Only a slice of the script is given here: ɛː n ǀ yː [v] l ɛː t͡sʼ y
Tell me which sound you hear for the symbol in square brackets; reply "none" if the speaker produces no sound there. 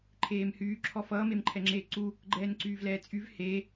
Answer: v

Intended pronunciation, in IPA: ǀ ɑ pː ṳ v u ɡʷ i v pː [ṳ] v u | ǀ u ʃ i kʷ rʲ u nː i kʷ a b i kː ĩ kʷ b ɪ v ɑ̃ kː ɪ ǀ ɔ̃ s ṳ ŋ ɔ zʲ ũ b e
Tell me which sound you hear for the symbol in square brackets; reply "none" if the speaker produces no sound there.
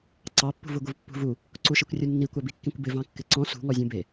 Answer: ṳ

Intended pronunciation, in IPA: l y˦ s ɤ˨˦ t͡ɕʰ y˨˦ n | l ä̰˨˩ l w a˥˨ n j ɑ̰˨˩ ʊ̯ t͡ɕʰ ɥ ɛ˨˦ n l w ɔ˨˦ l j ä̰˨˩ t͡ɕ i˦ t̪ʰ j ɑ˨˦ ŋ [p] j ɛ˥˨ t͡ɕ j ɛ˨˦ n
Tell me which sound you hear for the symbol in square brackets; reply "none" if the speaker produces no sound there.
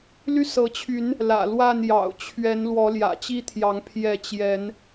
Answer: pʰ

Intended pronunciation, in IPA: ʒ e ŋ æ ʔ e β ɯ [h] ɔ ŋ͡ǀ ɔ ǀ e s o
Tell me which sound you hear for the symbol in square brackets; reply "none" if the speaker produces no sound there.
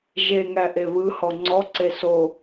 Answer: h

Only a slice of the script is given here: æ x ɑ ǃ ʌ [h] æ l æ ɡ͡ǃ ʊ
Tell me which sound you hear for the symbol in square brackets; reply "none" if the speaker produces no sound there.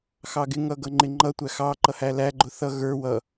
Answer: h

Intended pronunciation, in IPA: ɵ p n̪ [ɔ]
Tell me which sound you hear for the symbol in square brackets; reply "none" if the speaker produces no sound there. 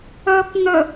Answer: ɵ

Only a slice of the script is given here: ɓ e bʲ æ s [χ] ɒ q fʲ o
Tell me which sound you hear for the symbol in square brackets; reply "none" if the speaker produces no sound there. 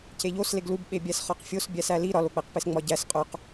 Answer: χ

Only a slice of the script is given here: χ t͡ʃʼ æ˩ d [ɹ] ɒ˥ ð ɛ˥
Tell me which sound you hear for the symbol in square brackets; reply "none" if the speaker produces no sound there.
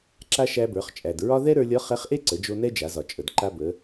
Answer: ɹ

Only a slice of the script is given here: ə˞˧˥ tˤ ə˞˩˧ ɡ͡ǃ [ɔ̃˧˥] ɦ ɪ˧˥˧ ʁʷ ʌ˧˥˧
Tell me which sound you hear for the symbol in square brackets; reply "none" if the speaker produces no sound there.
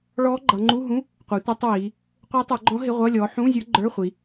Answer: ɔ̃˧˥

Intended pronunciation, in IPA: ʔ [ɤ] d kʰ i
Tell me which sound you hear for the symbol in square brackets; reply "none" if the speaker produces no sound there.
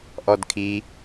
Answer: ɔ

